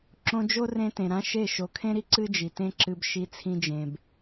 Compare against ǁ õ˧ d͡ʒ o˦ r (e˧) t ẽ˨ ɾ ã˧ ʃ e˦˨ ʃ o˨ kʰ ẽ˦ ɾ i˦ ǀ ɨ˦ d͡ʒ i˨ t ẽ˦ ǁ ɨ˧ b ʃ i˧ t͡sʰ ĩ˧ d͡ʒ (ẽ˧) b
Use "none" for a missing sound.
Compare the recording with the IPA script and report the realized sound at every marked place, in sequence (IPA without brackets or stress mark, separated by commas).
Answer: ẽ˧, ẽ˨